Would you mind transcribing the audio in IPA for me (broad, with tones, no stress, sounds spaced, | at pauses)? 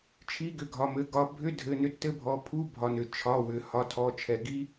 t͡ʃʰ i˧˥˧ ɡ ʏ˩˧˩ ɡʱ ɒ˩˧˩ m ɘ˩˧˩ ɡ ɒ˧ bʱ ʏ˧˥˧ dʱ ɘ˩˧˩ n ʏ˧ tː ɘ˧˥˧ bʱ ɔ˩˧˩ pʰ u˧˥˧ bʱ ɒ˩ n ʏ˩ t͡ʃʰ ɒ˩˧˩ w ʏ˩ h ɒ˩˧˩ tʰ ɔ˩˧˩ t͡ʃʰ ɛ˩ ɡ i˧